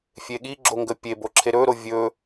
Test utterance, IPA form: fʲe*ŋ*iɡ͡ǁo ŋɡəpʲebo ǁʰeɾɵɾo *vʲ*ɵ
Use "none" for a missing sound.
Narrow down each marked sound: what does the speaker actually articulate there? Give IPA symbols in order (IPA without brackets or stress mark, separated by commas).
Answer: ɠ, vʲ